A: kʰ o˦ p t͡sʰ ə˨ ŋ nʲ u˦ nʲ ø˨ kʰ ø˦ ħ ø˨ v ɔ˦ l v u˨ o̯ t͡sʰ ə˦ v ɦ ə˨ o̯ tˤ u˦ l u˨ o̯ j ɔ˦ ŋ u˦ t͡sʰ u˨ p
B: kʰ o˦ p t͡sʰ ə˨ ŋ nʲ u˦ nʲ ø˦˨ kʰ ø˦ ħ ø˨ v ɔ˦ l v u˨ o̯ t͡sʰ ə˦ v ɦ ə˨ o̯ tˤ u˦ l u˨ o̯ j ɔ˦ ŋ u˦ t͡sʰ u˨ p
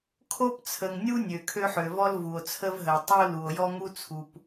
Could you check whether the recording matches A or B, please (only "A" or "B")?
A